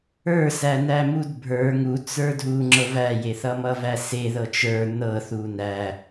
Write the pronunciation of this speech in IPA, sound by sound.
ə˞ s æ n æ m u d bʱ ə˞ ŋ u t͡s ə˞ dʱ u ŋ͡ǁ ɤ v æ j e θ ʌ m ʌ v æ s e ð ɤ t͡ʃ ə˞ n ɤ θ u n æ

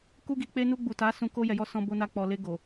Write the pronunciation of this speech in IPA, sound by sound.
k u˧ ɡ i˨ k͡p e˧ n u˧ ɡ͡b u˨ t a˨˦ s ũ˧ k o˧ j ɛ˨ j ɔ˧ s ɔ̃˧ b o˧ n a˧ k͡p ɔ˨ l e˧ ɡ o˨

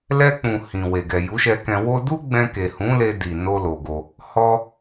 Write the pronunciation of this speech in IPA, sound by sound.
l ɛ˧ k͡p ũ˨ h ĩ˨ w e˨ ɡ ɛ˨ j u˨˦ ʃ ɛ˧ k ɛ̃˧ w o˦ d u˦ ɡ͡b ɛ̃˧ k e˨ h ũ˨˦ l e˧ d i˨ n o˧ l o˨ ɡ o˧ | h ɔ˦

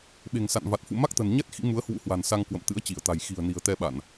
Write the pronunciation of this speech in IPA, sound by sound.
ɓ e̤˨˩ ŋ s a̰˧˨ n v a˨˩ t̚ f ṵ˧˨ m a˦˥ k̚ t̪ ə̤˨˩ n ɲ ɛ˦˥ t̚ x ḭ˧˥ m u˨˦ ə̯ h w ṵ˧˥ h w a̤˨˩ n s a˧ ŋ k w ə̰˧˨ m t̪ ɨ̰˧˥ ə̯ t͡ɕ i˧˩ ə̯ t̪ a̤˨˩ j x i̤˨˩ ə̯ n i̤˨˩ ə̯ t̪ ɛ˧ ɓ a˧˩˨ n

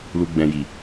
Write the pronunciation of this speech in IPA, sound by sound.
l u˨ ɡ͡b ɛ̃˨ j i˨

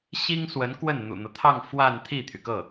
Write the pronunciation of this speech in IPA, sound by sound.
ɕ i˥ ŋ s w ə˧˥ n k w ə˥˩ n n̪ ṵ˨˩ n̪ ɤ˦ t̪ʰ ɑ˥˧ ŋ f w a˥˧ n t̪ʰ i˥˩ t̪ʰ y˩ k ɤ˥˩

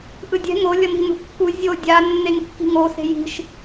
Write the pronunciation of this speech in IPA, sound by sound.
ʔ ɯ dʲ ɛ̤ ŋ o lʲ ʌ n i̤ n ṳ kː u zʲ o dʲ a nː e ŋ kː i̤ ŋ o s e̤ j i̤ ʃ

